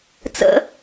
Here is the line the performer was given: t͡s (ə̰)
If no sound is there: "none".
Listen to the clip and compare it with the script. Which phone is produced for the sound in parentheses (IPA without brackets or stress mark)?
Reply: ə̰